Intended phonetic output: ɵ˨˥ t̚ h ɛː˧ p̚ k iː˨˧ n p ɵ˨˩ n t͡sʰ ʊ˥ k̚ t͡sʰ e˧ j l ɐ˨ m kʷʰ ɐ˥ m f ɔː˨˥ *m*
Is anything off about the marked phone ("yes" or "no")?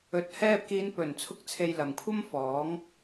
yes